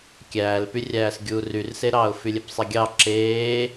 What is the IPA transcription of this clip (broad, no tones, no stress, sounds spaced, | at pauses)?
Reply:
kʲ æː l p y rʲ æː s ɡʲ uː r y r s e ɾ ɑː ʊ̯ f y lʲ e p sˤ e ɡʲ ɑ ǁ eː